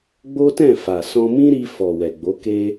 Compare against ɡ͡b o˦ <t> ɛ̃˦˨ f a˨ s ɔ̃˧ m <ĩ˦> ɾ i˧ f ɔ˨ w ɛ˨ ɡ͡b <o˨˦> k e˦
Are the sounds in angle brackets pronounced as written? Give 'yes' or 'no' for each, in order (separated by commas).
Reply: yes, yes, yes